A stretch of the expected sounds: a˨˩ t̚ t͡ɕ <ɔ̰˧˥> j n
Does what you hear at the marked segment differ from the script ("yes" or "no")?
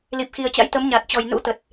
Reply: yes